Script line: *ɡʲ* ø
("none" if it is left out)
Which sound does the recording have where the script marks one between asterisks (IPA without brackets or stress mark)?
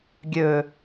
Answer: ɡʲ